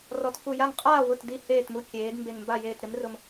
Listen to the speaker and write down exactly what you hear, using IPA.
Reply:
rɔ˩˥tfu˧˩ja˥˩ŋ qʼaː˥˩ wʊ˥˩tdi˥˩heː˥˩tmu˦ kʲeː˩˥d mbe˧˩ŋmba˥˩jeː˧˩t ɾɪ˩˥mrʊ˧˩m

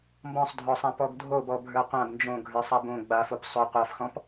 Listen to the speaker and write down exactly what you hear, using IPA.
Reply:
mbɔ̃sˤdʱɔsˤã pɔɡdʱobɔ bʱə˞qʷãb nd͡ʒõ ɡʱə˞sˤabõ ɡ͡bafop sˤɵ qʷafxɔ̃p

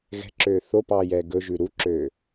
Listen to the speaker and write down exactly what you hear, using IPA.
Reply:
ɣɛ̤ǁøː θopɑːjɛː ɡɵʒʉ ɾuǁøː

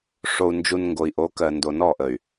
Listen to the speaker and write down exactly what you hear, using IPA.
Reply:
ʂo˨u̯nd͡ʒu˨n ŋɡo˨i̯ʔo˨˦kɜ˨ ndo˨nɔ˦˨ʔə˨y̯

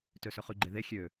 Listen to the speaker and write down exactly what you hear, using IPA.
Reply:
tøsøχyɡ͡ǃe ðe xʲø

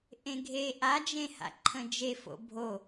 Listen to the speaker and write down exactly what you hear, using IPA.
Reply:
ʔẽɡʱe ʔad͡ʒẽha̰ ǃʰə̃d͡ʒefo̰ bʱo

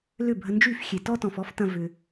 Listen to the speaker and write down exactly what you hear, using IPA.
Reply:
lʏ˦˨bʱə˧nd͡ʒy˦˨fxʲe˨ tɔ˦tɔ̃˨fɔ˦ftɐ̃˧ vʏ˧

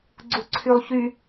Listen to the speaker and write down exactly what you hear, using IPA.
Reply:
ɡ͡ǀuǀʰylˠçy

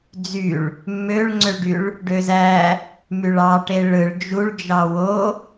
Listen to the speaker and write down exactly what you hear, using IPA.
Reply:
d͡zyɭ | mːøɭŋ͡ǀøɭɖyɭ | ɖøzæ | myɭɑʈe ɭɯɭ d͡ʒuɭd͡ʒɑ wo

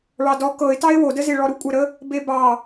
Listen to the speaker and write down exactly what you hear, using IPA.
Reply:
ɭɑdɔ kɤɪ̯tɑɪ̯ wodəze ɭɔɾukʷʼəɾə | bebɑ

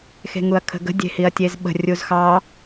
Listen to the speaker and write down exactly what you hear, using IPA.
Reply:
xe̤ŋuɐ̯kʰə̤ɡə̤ dʲe̤hiɐ̯tʲezɓə̤ rʲuzxɑ

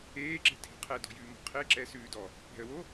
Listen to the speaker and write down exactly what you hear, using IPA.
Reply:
eːǁe̤tʰe̤ qʰɛdɔ̤jʉːmɔ̤ qʰe ǁɛsʉːdɔ | pɛ̤ə̯wo

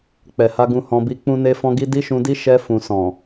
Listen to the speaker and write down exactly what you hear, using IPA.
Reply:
k͡pɛ˨ha˧ɡũ˧ hɔ̃˧bi˧k͡pũ˦ne˦ fɔ̃˧ɡi˧ di˦ʃũ˧di˦ ʃɛ˧fũ˨sɔ̃˨

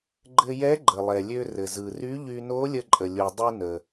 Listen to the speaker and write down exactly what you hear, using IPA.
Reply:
ɡ͡ǃɘ˧jɛ˧˥ɡ͡ǃə˩ lˠɛ˩lʲø˧rɘ˩zɯ˩ ry˧˥ʎy˧no˧˥ lʲə˧ ǃʼə˩lʲu˩dˤɯ˧ nə˩

